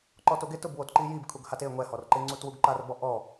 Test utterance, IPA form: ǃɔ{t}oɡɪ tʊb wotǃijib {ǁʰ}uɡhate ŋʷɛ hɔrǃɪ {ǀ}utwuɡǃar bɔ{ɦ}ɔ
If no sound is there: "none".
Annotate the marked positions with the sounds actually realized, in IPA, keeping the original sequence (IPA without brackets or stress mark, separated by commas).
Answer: t, kʰ, ŋ͡ǀ, ʔ